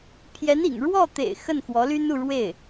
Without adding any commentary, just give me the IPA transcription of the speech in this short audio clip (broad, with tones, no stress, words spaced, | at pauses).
pʰjɛ˧˥nḭ˨˩ŋ ɻwɔ˥˩t̪ḛ˨˩ɪ̯ xə˥˩nxwɔ˧˥ly˥nu˥˧ ɻwe˥˩ɪ̯